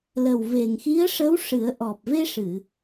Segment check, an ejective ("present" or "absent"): absent